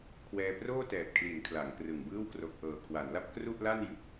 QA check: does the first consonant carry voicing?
no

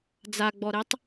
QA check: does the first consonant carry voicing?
yes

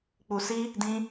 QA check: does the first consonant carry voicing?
no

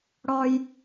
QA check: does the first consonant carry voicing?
yes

